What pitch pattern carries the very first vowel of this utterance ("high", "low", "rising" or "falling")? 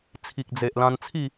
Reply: low